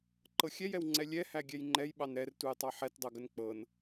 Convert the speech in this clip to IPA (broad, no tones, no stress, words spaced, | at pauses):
ǃɤxʲɛjɛw ŋ͡ǀɛlʲɛhæ ɡʲɛjŋ͡ǃɛj ɓɑnɾɛrtujtˤɑ ħɛtdˤɤɡən k͡pɤn